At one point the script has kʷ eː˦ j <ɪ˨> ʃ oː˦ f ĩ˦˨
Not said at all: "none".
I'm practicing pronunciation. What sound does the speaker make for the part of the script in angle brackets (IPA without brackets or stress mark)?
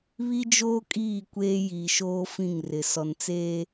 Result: i˨